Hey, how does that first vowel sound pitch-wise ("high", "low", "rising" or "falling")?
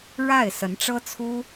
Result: falling